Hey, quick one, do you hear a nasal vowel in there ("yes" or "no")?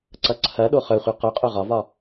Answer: no